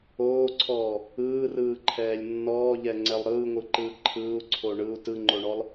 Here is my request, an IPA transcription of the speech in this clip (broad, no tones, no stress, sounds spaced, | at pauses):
oː ǀʰ ɔː | ɯː r ɯː ǃʰ ɛː lʲ nː ɔː ʎ ɛ ŋ͡ǀ ɛ lˠ ɾ ɯː ŋʷ ɯ ǃ ɯː ǃʰ ɯː u̯ ǀʰ o ɳ ɯ u̯ t ɯ ŋ͡ǃ o ɳ ɔ lˠ